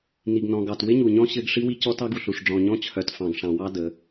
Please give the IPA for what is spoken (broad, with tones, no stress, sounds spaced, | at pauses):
n i˨ ɡ n ɔ̃˨ ɡ ɑ˨ t w ɪ˦ ɲ u˨ ɲ ɔ̃˦ ɕ ɘ˦ ɡ ʂ i˦ w i˦ c ɔ˦ t ɑ˦ ɡ u˨ ɬ u˨ ʂ ɖ͡ʐ ɔ̃˨ ɲ ɔ̃˦ t͡ɕʰ œ˨ t f ɑ̃˨ ɡ ʂ ɑ̃˨ w ɑ˦ d ə˨˦